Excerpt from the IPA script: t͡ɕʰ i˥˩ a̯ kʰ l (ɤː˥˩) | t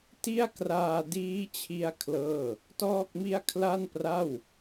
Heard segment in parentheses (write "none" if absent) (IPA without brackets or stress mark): ɤː˥˩